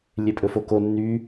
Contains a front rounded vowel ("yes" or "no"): yes